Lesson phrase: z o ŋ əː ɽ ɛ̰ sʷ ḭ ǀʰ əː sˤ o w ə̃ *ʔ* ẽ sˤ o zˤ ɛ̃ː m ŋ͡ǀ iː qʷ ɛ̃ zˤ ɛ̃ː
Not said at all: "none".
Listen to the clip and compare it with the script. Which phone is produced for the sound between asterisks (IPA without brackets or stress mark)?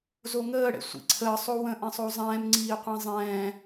ʔ